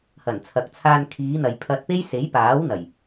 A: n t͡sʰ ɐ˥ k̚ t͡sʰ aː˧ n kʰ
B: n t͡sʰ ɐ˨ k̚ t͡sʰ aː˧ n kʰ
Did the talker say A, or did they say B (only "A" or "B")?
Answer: B